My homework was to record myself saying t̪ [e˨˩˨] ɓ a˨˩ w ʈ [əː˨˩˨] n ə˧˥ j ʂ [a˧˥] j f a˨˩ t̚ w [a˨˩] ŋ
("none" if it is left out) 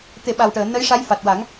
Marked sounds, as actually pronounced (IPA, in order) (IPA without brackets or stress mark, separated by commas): e˨˩˨, əː˨˩˨, a˧˥, a˨˩˦